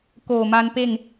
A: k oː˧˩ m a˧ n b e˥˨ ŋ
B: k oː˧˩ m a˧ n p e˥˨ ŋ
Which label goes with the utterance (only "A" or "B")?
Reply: B